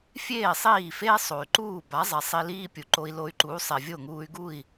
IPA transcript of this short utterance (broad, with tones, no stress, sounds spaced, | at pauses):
fʲ eː˥˩ sˤ iː˥˩ f eː˥ sˤ o˩ y̯ ǃ uː˥˩ b a˩˥ zˤ ɛ˩ sˤ i˧ l iː˥ pʲ u˩ ǃ o˧ i̯ l o˧ y̯ ǃ uː˩˥ sˤ e˩ vʲ o˥˩ ŋ uː˧ y̯ ɡ u˥˩ i̯